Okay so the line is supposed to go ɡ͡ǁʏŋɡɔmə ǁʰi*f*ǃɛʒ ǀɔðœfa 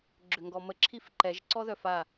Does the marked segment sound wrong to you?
no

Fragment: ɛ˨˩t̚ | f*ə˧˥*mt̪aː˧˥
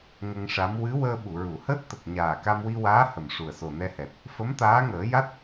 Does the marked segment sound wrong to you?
no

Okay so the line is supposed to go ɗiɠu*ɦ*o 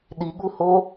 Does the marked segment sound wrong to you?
yes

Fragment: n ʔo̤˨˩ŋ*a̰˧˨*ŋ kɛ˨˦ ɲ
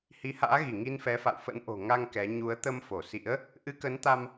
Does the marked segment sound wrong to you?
yes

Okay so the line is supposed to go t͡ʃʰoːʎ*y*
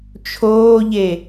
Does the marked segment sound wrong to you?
yes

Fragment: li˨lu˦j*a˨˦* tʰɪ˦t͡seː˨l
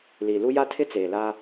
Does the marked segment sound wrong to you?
yes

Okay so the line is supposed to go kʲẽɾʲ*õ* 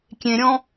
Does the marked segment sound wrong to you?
yes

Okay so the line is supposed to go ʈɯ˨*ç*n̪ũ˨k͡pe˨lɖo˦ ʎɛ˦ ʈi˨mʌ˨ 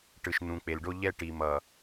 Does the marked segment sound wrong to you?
yes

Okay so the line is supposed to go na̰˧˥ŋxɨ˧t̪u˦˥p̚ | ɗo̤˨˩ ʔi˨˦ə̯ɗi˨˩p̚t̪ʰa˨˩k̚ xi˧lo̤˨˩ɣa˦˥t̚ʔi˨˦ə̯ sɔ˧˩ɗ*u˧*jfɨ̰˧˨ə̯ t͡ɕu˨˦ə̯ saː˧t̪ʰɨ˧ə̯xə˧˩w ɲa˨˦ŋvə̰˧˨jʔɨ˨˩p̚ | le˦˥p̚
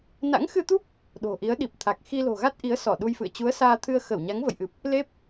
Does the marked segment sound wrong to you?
no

